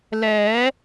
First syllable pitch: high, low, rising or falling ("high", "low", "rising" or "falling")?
rising